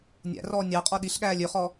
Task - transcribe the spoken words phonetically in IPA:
nʲ æ̰ r ɔː nʲ ɑ qʼ ɔ ɗ i ɬ ɠ æː lʲ ø χ ɔ

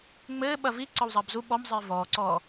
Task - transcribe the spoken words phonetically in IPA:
ŋ͡m ɘː ɓ ɐ v i ǀ ɒ w zˤ ɐː b z u ɓ ɔ m zˤ ɘː v ɔː ǀ ɔː

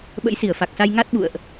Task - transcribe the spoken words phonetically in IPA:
ɓ ə̰˧˥ j s i˧˩ ə̯ f a˨˩ k̚ s a˧ j ŋ a˦˥ t̚ ɓ ṵ˧˨ ə̯ ʔ

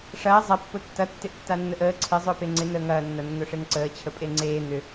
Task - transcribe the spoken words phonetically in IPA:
ʂ ɐː zˤ ɐ pː ʊ tː ɐ tː ɪ ʔ tː a nː ə ʔ əː ǀʰ ɪ zˤ ʊː p e ŋ͡ǀ ɪ n əː ŋ ɐː nː ɐ nː ʊ ʂ e ŋ ǀ əː t͡ɕʰ ə pʼ e ŋ͡ǀ eː n̪ ʏ

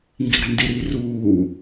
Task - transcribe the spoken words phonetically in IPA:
ŋ ɡ i̤ ɾ a̤ n d i ɾ iː r uː

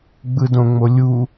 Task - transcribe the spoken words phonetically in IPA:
ɡ͡b ɯ d õ ŋ͡m o lʲ u

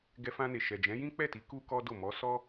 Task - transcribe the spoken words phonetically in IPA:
ɡ ɛ˧ f ã˧ n e˨ ʃ ɛ˨ d͡ʒ ɛ̃˨˦ j ĩ˦ k͡p ɛ˦˨ t i˨˦ k u˦ k ɔ˦ d o˦˨ m ɔ˨˦ s ɔ˦

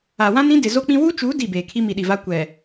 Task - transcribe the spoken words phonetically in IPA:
a˨ w ã˦ n ĩ˦ d ɪ˨ z o˦ k͡p ĩ˦ w u˦ t͡ʃ u˨˦ d i˦˨ b eː˨ kʰ i˦ m i˨ ɗ i˨ v a˦ kʷ ɛ˨

